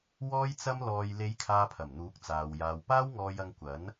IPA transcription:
w ɔː˧ j t͡s ɐ˧ m l ɔː˨ j l e˨˧ j kʰ aː˧ pʰ ɐ˨˩ m n̪ uː˨˥ k̚ t͡s aː˨ w j aː˨ w p aː˥ w ŋ ɔː˧ j ɐ˧ ŋ kʷ ɐ˨˥ n

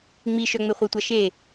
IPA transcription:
ŋ͡m i ʃ œ ŋ͡m e χʷ i tʷ a ʃ e

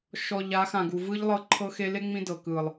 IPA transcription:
ʃ ɔ˨ ʎ a˨˦ x ã˨ ɡ u˨ v ɯ˦ ʎ lˠ ɤ˦ ǃʰ ɤ˦ x e˦ l e˦ ŋ͡m ĩ˦ d ɤ˨ k ɯ˨ lˠ

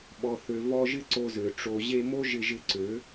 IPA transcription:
ɓ ɔ˨ θ ø˨ v ɔ˧ ʒ ɪ˦ ǀ o˧ z ø˨ ʈ͡ʂ o˨ ʑ e˧ m o˦ ʒ ɪ˧ ʒ ɪ˧ ǀ ø˨˦

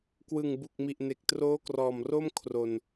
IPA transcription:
k w ɯ˨˩ ŋ b u˨˩ k̚ m i˨˩ ʔ n e˨˩ k̚ t r oː˦˥ k r ɔː˨˩ m r o˥˩ m kʰ r o˨˩ n

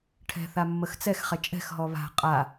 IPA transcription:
ʈʰ ɛ̤ θ a mː ə x t͡s ɛ x χ ɛ t͡ʃʼ ɛ̤ x ɦ ɔ β a̤ qʼ a

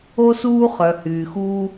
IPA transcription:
o˥ s uː˥ χ œ˩ h yː˩ x uː˥

